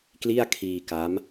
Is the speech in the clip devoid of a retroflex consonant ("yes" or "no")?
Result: yes